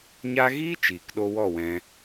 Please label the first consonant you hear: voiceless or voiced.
voiced